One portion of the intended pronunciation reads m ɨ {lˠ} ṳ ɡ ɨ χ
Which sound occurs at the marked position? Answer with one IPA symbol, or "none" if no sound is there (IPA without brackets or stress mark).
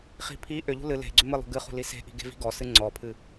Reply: lˠ